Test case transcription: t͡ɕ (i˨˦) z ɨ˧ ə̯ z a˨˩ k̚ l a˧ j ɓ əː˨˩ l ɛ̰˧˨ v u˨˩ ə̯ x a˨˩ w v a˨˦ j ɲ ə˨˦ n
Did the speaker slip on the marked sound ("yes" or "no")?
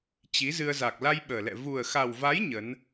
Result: no